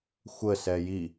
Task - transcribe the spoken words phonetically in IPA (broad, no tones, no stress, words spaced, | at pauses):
xʷə sɛji